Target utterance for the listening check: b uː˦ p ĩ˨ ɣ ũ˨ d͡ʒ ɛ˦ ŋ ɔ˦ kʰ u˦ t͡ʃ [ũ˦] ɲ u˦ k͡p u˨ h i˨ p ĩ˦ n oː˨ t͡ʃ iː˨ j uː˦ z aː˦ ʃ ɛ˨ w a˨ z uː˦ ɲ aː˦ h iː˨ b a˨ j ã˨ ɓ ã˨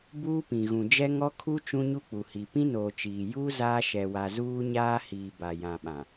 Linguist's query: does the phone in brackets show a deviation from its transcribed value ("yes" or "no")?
no